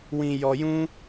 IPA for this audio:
w ĩ˧ j ɔ˧ j ũ˦

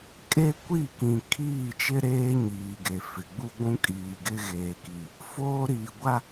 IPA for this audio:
kʼ e˦ kʷ i˦˨ k ĩ˨ kʰ iː˦˨ t͡ʃ ɪ˦ ɾ eː˦ ɲ iː˨ ɡ e˨ f ɪ˨ ɡ͡b u˦ ɡʷ ũ˦ kʼ iː˨ ɡ ɪ˦ ɣ eː˨ k i˨ | f oː˦ ɾ iː˨ ɡʷ a˦

